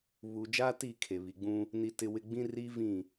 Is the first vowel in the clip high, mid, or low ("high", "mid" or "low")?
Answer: high